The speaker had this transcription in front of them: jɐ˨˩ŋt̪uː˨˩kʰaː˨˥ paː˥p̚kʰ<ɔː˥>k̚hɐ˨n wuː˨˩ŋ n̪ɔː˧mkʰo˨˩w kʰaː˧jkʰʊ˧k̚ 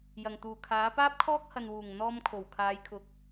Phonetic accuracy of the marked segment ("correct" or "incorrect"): correct